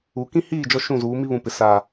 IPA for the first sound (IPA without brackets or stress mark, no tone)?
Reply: u